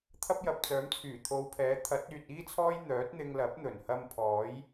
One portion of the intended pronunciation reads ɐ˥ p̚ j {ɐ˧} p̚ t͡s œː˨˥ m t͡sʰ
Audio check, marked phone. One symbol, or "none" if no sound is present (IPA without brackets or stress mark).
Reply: ɐ˨